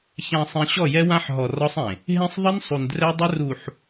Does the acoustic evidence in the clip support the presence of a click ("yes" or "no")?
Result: no